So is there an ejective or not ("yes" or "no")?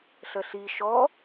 no